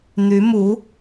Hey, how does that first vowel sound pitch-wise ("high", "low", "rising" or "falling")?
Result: rising